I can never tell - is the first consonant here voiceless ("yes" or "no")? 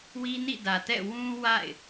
no